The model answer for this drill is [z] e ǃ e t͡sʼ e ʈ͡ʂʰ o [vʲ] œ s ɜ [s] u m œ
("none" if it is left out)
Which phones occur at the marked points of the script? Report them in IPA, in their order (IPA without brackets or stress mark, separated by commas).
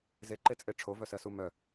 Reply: z, v, s